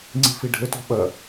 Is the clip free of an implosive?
no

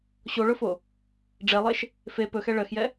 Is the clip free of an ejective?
yes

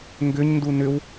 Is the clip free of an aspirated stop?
yes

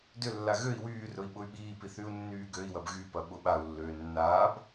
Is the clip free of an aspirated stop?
yes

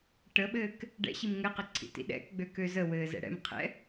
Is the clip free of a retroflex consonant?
no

